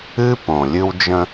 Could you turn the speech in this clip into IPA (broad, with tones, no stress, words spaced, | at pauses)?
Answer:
ɨ˦põ˨ lʲɨ˦wd͡ʒə̃˦